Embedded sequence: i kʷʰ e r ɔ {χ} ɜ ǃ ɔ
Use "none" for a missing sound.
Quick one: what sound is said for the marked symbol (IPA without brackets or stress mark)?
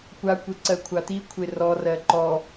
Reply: r